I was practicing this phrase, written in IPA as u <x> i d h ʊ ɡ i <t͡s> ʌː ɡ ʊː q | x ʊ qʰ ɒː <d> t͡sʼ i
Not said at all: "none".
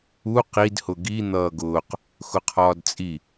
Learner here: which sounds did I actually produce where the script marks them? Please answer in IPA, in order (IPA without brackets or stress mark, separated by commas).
q, n̪, d